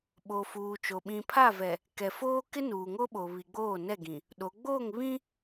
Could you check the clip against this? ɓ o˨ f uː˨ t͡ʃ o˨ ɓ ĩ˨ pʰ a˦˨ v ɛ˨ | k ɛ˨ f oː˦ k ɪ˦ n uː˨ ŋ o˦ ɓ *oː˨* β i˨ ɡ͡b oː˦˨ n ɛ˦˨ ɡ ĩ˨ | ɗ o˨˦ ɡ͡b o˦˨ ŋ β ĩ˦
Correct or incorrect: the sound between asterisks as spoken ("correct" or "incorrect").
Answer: incorrect